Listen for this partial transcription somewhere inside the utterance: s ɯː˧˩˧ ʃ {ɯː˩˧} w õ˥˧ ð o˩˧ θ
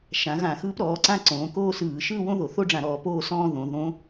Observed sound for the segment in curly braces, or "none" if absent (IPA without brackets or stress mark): ɯː˥˧